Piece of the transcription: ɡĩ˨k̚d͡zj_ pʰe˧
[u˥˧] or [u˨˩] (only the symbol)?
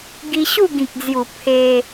u˨˩